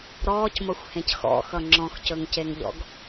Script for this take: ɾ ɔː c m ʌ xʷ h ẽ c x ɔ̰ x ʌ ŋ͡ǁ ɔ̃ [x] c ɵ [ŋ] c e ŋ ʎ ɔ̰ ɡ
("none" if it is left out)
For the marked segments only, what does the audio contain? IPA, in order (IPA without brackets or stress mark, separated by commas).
x, ŋ